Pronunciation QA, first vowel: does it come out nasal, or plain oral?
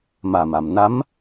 oral